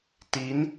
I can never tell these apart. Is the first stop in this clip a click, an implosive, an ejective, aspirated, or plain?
plain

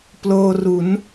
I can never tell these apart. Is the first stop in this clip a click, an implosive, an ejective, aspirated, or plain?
plain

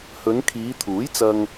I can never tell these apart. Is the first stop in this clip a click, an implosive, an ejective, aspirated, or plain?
aspirated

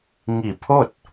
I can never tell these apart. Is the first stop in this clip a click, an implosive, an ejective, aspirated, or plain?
aspirated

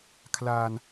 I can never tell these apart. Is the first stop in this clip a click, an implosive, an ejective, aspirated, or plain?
aspirated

